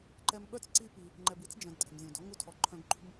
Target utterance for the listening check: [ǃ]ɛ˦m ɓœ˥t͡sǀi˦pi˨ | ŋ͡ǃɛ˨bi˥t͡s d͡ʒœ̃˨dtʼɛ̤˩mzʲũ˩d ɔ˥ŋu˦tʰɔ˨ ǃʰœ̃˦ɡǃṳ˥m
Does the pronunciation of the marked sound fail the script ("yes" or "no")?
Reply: no